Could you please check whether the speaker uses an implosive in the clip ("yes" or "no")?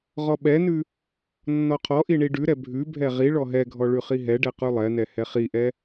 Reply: yes